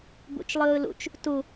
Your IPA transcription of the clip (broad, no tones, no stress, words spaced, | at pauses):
bṵt͡ʃlˠɯːlṵt͡ʃ | tu